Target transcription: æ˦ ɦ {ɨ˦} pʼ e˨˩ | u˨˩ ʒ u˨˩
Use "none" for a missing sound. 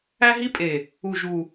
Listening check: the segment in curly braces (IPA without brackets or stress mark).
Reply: i˦